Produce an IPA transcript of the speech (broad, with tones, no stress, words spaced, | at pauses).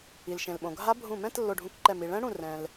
i˩lʃẽ˩lɓõ˩ɡʱa˧˥ bʱũ˧˩mɛ̃˧˥˧t lːo˧˩ɖʱũ˧˩kǃɛ˧˩ mi˩ɭɛ̃˧˥ɽũ˧˩ rɛ̃˩l